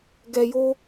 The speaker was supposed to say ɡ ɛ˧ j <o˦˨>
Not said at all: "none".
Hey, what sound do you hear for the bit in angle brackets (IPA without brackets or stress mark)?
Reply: o˦